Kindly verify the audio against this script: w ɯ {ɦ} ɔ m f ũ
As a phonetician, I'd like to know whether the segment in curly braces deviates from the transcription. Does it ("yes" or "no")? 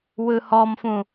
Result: yes